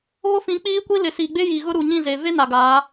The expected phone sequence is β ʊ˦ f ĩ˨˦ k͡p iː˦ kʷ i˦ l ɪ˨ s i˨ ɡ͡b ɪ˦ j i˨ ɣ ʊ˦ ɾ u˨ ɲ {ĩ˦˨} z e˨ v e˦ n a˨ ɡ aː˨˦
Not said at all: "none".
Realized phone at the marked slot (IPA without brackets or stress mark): ĩ˦˨